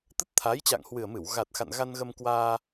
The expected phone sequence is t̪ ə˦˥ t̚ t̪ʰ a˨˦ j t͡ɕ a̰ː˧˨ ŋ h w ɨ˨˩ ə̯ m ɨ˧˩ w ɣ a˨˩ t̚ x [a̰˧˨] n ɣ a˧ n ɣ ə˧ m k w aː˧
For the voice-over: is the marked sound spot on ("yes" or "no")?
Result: yes